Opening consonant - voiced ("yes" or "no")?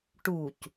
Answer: no